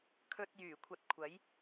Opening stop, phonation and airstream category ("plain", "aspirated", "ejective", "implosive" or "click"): aspirated